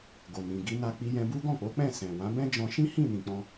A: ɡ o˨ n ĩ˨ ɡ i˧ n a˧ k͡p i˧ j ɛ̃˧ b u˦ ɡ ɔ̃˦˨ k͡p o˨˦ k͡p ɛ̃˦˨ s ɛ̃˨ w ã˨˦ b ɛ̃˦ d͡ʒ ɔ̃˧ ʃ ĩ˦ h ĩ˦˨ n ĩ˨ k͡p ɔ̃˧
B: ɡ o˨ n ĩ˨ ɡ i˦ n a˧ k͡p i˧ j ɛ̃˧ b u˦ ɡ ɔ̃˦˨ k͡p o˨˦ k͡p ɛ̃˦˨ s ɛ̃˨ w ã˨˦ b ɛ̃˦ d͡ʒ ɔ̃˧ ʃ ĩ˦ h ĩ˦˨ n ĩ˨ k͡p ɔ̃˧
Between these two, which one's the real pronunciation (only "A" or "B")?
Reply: A